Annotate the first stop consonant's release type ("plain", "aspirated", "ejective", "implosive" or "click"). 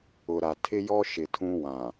aspirated